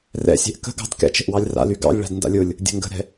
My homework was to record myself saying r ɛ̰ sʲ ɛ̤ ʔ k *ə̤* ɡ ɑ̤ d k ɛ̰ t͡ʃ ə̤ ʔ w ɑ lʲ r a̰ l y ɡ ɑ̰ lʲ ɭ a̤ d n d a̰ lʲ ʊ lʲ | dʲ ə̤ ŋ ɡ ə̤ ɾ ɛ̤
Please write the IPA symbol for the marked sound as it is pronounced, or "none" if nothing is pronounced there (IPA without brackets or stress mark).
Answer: ə̤